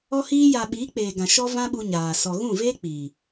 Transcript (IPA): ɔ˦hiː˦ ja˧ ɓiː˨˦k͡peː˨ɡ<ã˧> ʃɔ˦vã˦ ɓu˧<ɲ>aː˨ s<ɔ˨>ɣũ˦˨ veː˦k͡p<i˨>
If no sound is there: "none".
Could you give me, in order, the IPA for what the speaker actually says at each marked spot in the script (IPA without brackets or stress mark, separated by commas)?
ã˨, ɲ, ɔ˨, iː˨